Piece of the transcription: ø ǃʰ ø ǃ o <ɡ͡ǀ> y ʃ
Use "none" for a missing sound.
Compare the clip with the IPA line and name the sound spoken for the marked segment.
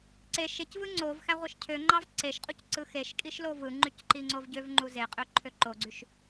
ɡ͡ǀ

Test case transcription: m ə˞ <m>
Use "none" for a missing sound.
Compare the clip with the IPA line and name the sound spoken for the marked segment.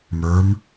m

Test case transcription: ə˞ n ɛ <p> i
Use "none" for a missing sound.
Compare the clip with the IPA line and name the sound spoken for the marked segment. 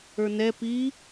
p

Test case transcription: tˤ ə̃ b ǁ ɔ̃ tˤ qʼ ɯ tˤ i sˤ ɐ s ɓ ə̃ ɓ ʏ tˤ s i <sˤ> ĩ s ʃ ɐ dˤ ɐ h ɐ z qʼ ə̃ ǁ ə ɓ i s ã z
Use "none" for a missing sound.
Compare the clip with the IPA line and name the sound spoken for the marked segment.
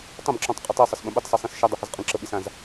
sˤ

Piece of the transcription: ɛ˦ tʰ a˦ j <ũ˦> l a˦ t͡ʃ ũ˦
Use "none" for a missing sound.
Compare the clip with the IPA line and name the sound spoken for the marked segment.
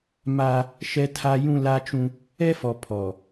ũ˦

